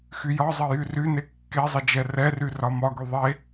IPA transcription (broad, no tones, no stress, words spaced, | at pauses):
xyjɒzˤə jyryne kːezˤə d͡ʒɛrɛry rɒmɒɡy ðˤe